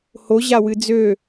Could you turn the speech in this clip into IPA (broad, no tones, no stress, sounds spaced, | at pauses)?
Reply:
h o ʑ a w ɨ d͡z ø